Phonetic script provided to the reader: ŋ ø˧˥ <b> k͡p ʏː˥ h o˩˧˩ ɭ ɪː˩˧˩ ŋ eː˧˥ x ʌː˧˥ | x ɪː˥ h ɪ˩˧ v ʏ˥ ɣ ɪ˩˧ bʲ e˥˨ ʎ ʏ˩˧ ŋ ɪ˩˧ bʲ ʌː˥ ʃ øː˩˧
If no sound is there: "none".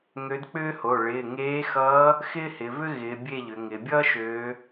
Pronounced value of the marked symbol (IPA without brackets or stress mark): d